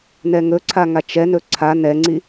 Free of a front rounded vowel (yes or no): yes